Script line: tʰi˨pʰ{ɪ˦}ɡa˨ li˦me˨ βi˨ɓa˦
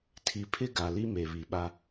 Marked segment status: correct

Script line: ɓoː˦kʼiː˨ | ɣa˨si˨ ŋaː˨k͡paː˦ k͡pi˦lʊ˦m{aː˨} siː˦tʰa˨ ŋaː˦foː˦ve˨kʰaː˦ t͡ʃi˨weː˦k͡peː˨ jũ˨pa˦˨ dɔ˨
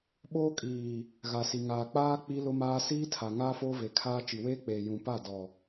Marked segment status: incorrect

